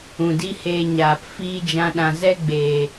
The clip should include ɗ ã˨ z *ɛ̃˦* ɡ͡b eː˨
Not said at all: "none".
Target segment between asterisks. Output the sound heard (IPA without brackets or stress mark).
ɛ˦